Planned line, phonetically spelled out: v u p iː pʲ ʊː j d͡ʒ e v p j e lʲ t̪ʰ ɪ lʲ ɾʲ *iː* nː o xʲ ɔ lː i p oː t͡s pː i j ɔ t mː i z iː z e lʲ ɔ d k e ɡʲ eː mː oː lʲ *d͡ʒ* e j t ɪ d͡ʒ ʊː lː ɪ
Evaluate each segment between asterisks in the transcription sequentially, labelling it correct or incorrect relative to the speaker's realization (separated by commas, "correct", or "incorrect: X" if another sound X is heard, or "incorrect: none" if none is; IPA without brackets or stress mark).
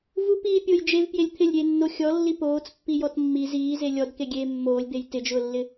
incorrect: eː, incorrect: d̪